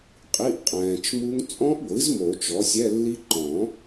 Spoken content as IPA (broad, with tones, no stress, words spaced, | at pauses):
qʼi˧˥˧ʔqʼɛ̃ː˨t͡ʃmu˦˥ŋ t͡sʼɔ̃˦˥ʔɡʷɨ˩˥z mo˨˩˦t͡ʃɔ˩˥sʲɛ˧˥˧lːi˦˥ ǃɔ̃˨˩˦